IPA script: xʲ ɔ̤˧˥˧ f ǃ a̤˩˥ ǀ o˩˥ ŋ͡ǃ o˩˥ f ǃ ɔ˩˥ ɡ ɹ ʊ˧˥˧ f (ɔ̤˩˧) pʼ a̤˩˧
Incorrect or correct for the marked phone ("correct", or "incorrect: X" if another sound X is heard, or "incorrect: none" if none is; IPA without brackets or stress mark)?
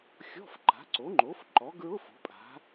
incorrect: o̤˩˧